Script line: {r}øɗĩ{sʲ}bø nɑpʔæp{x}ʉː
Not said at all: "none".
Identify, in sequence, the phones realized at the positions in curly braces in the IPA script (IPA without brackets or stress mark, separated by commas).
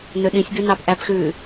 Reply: n, sʲ, x